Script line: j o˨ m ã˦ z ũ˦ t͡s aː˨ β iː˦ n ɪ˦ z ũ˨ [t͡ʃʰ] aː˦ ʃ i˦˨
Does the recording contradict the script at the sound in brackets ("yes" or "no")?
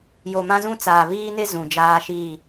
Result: yes